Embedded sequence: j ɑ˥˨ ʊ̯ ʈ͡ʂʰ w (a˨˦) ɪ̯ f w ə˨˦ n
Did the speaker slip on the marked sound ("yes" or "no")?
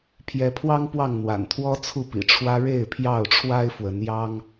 yes